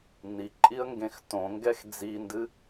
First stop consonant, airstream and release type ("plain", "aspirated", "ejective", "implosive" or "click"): click